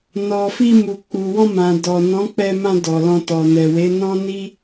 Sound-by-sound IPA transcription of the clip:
nɔ˨fi˧ mu˨k͡pu˨wɔ̃˧mã˨ dɔ˨nɔ̃˨˦ k͡pɛ˧mã˧ dɔ˨lɔ̃˧ tɔ˨nɛ˨ we˨˦nɔ̃˦ni˦

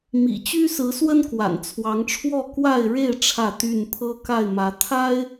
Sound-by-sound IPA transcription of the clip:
mḭ˨˩t͡ɕy˦ sɹ̩˨˦swə˦nkwa̰˨˩n t͡sʰwɑ˨˦ŋʈ͡ʂʰwɔ˥˨ kwa˥˨ɪ̯ɻe˥˨ɪ̯ ʈ͡ʂʰä˥˨t̪y˥˨n pʰɤ˦ka˥˨ɪ̯mä˨˦ t̪ʰa˦ɪ̯

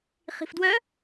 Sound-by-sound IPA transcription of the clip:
χi̤fdwœ

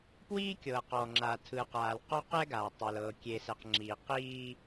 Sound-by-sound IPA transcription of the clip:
pwiː˦kʲɤ˨ qɔ˨ŋ͡ǁa˨tʰɯ˨qaː˨l qɔ˦qɛ˦ɡaː˨tˤu˨l ɤ˨kʲe˨sɛ˨q ŋ͡ǁi˨ qiː˦

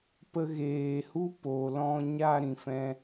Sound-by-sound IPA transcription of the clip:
pə˧ɣeː˨hu˦ po˨lɔ̃˧ɲa˧ ɾĩ˨fɛ̃˦

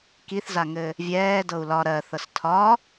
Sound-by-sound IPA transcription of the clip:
kiθzaŋɘ | vʲɛːdɤu̯ lɒ ɾɜθɤs tʰɒ

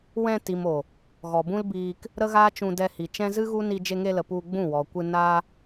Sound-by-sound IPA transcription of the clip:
wɛ̃˧ti˨mo˨ | ɣɔ˨bũ˦lbiː˧k | ɾə˦ɣaː˦ t͡ʃũ˧dɛ˧hi˨t͡ʃɛ̃˦ zɨ˦ɣu˦ ni˧d͡ʒe˧ŋe˧lə˨ pu˧ ɡ͡bũ˦˨wɔ˨kʷɨ˧ na˧

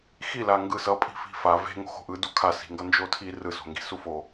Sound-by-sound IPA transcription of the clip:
xilaŋɡɯ sʌpʼi̤ fi̤fa ve̤ ŋo̤xo̤ʔɯdu kʰasi̤ŋɡʌ nd͡ʒotʰi rɯso̤ŋɡi̤ sufo

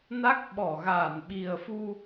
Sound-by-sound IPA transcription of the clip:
na˦˥k̚ɓɔ˧˩ ɣaː˧˩nɓi˨˩ə̯fu˧

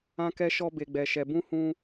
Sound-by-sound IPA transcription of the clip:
ã˦kɛ˦ ʃɔ˦be˧ɡ͡bɛ˧ʃɛ˧ bũ˦hũ˦

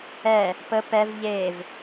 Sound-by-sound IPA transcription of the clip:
ɛ | pə pɛv ʎev

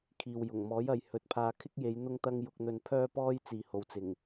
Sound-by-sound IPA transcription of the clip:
kʰiː˨wjʊ˨˩ŋ mɔː˨˥jɐ˨j hɵ˨˥t̚pʰaː˧ kʰɪ˥k̚je˨˧j n̪ʊ˥ŋt̪ɐ˥ŋ jʊ˧k̚n̪ɵ˧npʰœː˥pɔː˥j t͡siː˨ho˨wt͡sɪ˨˩ŋ

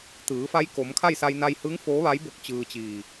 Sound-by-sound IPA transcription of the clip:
t̪ɯː˩˧ fa˧˥jko˩˧mkʰa˥˨jsa˧j na˧jhɯː˧˥ŋ foː˧˥ʋa˧˥jbo˧k̚ t͡ɕɯː˧t͡ɕiː˧˩

